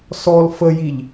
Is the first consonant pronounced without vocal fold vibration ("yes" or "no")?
yes